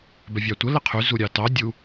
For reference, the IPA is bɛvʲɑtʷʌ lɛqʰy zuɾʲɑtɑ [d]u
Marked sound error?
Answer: yes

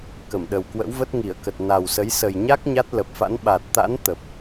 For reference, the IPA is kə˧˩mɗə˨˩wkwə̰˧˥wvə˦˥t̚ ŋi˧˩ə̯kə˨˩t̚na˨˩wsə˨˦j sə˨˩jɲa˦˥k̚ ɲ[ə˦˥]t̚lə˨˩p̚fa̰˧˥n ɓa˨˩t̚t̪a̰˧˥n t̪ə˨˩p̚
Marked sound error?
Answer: yes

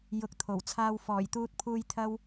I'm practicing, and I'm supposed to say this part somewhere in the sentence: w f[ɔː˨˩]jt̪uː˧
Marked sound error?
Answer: no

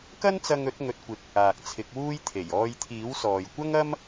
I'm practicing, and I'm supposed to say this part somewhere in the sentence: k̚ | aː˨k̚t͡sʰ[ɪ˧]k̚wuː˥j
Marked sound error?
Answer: yes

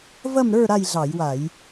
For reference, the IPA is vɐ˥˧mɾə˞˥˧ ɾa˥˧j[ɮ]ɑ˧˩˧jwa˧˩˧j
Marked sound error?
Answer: no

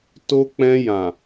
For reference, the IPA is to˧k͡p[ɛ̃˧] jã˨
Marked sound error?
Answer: no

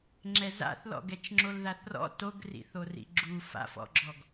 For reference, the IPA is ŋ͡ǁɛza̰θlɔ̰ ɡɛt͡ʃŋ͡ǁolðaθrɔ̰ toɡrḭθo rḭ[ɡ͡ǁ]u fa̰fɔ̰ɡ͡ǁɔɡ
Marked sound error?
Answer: no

